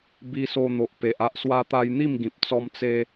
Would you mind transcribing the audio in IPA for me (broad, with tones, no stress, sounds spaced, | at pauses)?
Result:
b i˧ s o˧ n̪ o˨ ʔ p e˨ ʔ a˦ ʔ s w a˧ t̪ a˧ j n̪ i˥˧ m ɡ ĩ˨ p̚ t͡s ɔ˧ m t͡s e˧